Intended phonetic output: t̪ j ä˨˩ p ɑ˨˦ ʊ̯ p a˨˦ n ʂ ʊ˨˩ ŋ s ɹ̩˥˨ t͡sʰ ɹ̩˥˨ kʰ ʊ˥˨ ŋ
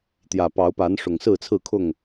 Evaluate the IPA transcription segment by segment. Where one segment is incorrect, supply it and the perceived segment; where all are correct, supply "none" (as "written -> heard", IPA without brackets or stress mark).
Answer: none